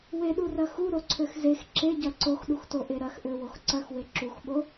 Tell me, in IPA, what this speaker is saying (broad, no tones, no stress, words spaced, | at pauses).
weɗurɐ xuɾoǀʰøx zex ǁeɟɐ ǀoxɗuxtoʔe ɾɐxʔøwox ǀɐxwe ǁuxɓo